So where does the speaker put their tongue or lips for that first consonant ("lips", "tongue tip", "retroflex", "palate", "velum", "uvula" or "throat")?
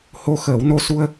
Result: throat